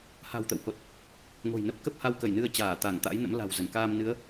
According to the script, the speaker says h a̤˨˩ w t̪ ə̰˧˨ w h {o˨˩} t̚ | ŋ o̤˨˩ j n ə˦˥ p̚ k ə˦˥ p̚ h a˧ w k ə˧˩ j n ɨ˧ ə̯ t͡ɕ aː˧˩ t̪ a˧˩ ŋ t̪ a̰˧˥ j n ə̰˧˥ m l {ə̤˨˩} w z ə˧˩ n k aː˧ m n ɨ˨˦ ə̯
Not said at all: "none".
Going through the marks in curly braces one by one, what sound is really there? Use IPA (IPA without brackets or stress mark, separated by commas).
o˨˩, a̤˨˩